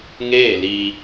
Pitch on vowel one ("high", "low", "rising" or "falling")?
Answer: falling